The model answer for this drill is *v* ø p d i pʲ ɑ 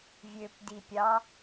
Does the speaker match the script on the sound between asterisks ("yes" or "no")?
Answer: no